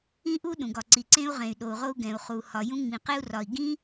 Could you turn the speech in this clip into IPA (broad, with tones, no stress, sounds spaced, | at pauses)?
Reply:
ĩ˥ ʔ u˥ ɗ ũ˩ ɡ ɒ˩ ǀ i˩ ǀ ẽ˥ u̯ ʁ ẽ˩ y̯ ɗ o˩ u̯ ʁ o˥ u̯ ɡ ɛ̃˩ u̯ χ u˩ h ɒ˩ j ũ˥ ŋ͡m ĩ˩ q e˥ u̯ r ɒ˩ i̯ ɡ ĩ˥